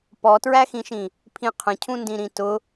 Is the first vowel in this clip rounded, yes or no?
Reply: yes